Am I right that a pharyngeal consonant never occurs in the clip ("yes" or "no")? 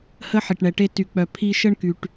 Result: no